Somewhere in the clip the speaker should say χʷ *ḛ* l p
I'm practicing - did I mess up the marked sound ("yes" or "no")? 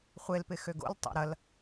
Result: yes